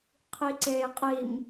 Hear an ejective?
yes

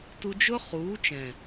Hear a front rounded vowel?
no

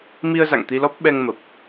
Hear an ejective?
no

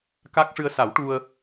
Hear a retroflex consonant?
yes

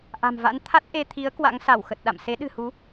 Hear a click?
no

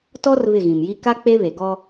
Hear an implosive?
no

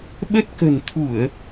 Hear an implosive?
yes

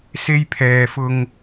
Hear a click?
no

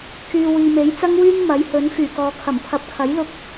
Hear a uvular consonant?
no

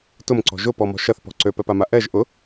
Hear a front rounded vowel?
yes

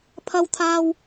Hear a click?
no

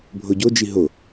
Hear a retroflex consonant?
no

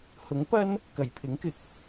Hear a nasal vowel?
no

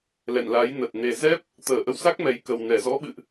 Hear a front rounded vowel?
no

